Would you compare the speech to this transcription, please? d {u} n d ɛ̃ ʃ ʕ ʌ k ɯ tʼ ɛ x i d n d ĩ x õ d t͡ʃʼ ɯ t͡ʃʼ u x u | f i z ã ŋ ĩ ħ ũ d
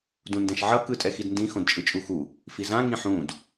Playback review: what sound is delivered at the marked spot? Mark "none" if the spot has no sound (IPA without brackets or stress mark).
ũ